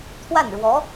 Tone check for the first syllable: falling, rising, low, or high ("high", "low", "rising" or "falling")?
falling